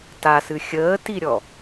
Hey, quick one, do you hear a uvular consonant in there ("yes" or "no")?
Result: no